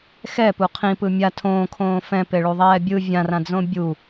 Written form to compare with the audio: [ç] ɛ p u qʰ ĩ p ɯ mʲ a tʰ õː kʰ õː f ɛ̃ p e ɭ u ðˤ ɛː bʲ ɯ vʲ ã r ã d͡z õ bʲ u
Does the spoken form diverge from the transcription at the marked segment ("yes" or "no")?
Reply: yes